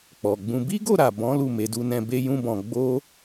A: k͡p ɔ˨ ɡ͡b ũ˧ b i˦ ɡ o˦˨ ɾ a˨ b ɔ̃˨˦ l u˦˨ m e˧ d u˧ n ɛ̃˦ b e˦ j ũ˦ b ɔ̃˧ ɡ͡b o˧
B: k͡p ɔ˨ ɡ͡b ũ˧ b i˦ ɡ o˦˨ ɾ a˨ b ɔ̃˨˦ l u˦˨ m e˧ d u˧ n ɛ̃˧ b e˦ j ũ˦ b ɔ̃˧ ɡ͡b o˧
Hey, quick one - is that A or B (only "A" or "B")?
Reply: B